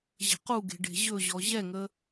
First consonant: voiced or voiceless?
voiced